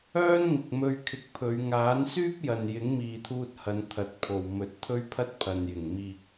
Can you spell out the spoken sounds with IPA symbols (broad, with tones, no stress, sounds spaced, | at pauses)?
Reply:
œː˥ n ŋ ɪ˨ k̚ m ɵ˧ ɥ kʰ ɪ˨ k̚ pʰ ɵ˨˧ ɥ ŋ aː˨˥ n s yː˥ p̚ j ɐ˨ n j ɪ˨˥ ŋ m iː˨ t̪ʰ uː˧ t̚ h ɐ˨˧ n t̪ʰ ɐ˨˥ t̚ pʰ o˨ w m ɵ˨˥ t̚ t̪ʰ ɵ˥ ɥ pʰ ɐ˥ t̚ pʰ ɐ˨ n j ɪ˨˩ ŋ m iː˨ k̚